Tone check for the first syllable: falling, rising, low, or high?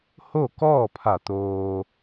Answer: falling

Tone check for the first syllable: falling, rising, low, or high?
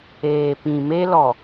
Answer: low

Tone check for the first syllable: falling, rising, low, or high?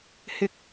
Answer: rising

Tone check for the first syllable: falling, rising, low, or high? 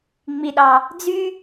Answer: low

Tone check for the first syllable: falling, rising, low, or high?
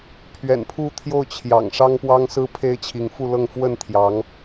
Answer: low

